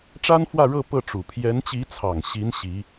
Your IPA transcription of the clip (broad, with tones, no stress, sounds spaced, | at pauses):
ʈ͡ʂ a˥ n f w ä˥˧ ɻ ɤ˥˧ p ɤ˥˩ ʈ͡ʂ u˨˩ pʰ j ɛ˧˥ n t͡ɕ i˧˥ t͡sʰ ɑ˨˩ ŋ ɕ i˧˥ n ɕ i˧˥